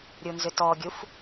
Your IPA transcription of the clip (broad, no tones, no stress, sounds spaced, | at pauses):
ɾʲ u n z ʏ t ɔ ɡʲ u f